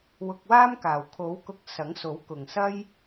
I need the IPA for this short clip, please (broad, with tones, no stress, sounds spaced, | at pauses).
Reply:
w ʊ˧ k̚ w aː˥ m k aː˨ w kʰ o˨˥ w k ʊ˧ k̚ s ɐ˨˥ ŋ s o˨˥ w k ʊ˨ ŋ s ɐ˥ j